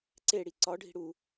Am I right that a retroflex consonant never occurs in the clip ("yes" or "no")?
no